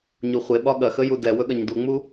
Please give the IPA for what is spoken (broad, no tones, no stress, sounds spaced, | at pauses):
ɲ u χʷ e ɓ ɒ ɠ ɐ x ə j u d ɛ w ɵ ɠ ɐ ɲ d u ŋ͡m u